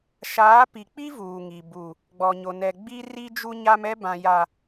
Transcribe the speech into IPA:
ʃ aː˨˦ p i˨ k͡p i˦ v uː˨ ŋ i˨ b u˨ | ɡ͡b ɔ˨ ɲ o˨ n ɛ˨ ɡ͡b i˦ r i˦ d͡ʒ u˦ ɲ a˦ m ɛ˦ b ã˨ j a˨

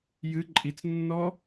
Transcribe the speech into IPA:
j ɨ ǃʼ i t͡s nː ɔ

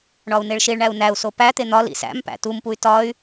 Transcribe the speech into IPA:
ɳ ɒ u̯ n e ɭ ʃ i ɭ ɳ æ u̯ n æ u̯ s o p æ t̪ e n̪ ɒ l ḭ s æ̰ m p æ̰ t u m p u y̯ t ɒ y̯

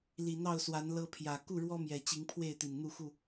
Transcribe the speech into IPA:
l i˨˩ n̪ ɑ˥˨ ʊ̯ s w a˨˦ n l ɤ˦ pʰ j ä˨˩ k u˥˨ ɻ w ɔ˦ m j ɛ˨˩ t͡ɕ i˨˦ ŋ pʰ w e˥˨ ɪ̯ t̪ i˨˩ n n̪ u˥˨ x u˥˨

